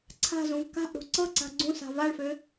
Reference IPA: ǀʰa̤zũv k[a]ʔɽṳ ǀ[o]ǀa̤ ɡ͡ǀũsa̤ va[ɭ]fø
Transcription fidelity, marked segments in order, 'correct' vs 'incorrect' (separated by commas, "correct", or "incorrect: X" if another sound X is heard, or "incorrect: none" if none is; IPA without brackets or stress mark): incorrect: a̤, incorrect: ɤ, correct